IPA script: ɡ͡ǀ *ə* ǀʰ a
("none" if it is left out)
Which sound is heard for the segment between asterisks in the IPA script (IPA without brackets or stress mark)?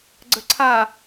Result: ə